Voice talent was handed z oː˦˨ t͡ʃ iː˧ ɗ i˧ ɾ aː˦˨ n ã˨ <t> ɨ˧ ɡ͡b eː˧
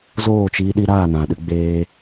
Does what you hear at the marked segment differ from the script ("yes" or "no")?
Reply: yes